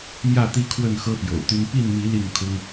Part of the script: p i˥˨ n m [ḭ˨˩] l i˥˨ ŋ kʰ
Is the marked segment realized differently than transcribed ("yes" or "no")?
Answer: yes